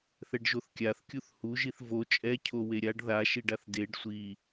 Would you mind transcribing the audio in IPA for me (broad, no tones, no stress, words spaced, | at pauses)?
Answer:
θɛɖʒoθkʲaθkʲuθ huʒiθ vo t͡ʃʼɛcʰo weɾʲaɖ ðaʃiɖaθ deɖ sʷi